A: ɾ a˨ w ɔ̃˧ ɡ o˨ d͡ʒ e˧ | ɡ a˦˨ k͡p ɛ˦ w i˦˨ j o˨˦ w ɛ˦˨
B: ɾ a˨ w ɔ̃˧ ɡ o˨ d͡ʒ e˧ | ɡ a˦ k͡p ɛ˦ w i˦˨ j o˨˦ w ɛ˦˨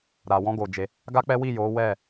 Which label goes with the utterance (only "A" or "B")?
B